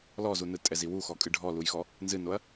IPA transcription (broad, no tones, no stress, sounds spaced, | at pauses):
l ɔ z u n ɯ tʼ ɛ z i w u x ɔ kʼ ɨ ɖʱ ɔ l u j x ɔ | n z ɨ n o ɐ̯